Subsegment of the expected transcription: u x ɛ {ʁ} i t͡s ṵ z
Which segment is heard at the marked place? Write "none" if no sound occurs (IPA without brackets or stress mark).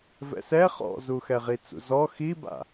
ʁ